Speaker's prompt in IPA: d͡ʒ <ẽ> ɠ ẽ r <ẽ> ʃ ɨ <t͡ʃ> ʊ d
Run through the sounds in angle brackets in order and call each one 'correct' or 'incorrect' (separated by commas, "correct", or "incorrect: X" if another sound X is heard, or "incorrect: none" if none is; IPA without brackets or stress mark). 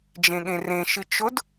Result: correct, correct, correct